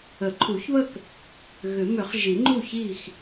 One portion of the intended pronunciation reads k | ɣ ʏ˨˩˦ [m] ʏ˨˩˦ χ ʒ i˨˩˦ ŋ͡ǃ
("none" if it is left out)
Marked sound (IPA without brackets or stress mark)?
m